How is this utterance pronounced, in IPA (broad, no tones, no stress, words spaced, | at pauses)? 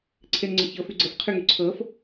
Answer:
ǀʰenŋ͡ǀəçɤf yɡ͡ǀəf qʰyŋyǀʰɤf